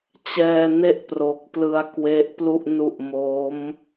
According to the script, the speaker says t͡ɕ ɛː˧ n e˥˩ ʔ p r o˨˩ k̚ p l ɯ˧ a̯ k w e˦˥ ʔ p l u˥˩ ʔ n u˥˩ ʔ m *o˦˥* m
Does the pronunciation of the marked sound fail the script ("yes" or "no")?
no